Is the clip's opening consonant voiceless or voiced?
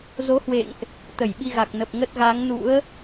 voiced